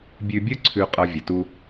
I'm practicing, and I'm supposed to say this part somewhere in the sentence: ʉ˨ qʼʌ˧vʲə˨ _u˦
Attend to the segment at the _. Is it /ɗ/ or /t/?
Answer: t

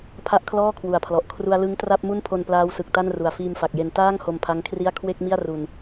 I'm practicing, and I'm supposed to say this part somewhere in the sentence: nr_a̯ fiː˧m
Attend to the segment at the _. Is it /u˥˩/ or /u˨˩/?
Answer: u˨˩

